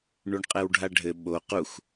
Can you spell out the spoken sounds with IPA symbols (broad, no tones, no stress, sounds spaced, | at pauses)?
ɳ u ɳ qʼ ɛ w ɖʱ a ɖʱ ɘ ɓ o q u x